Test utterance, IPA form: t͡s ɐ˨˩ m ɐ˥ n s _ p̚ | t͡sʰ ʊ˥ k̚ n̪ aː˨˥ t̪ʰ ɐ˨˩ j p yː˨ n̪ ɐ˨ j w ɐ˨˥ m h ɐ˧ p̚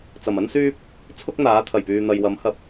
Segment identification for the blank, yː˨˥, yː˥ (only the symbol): yː˥